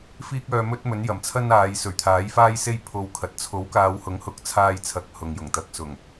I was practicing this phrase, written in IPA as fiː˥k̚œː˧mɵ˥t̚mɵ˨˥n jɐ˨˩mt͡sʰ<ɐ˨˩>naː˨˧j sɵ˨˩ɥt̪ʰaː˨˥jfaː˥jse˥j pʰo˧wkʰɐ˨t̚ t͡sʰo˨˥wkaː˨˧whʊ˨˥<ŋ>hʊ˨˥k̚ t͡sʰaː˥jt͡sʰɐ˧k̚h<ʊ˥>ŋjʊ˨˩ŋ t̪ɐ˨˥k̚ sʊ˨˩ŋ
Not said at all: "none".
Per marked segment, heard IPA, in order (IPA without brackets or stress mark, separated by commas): ɐ˥, ŋ, ʊ˨